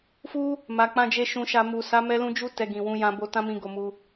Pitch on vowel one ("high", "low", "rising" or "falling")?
high